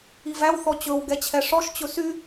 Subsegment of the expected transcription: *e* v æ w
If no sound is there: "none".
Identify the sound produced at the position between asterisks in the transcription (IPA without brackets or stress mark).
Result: i